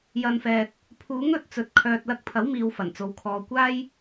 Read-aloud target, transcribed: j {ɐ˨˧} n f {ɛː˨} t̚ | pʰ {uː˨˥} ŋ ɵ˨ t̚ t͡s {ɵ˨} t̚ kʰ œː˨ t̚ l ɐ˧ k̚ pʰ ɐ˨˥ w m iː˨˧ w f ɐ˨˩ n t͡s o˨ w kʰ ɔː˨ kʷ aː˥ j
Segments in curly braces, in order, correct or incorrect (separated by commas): correct, correct, correct, correct